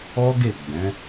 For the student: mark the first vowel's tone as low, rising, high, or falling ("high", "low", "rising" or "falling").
high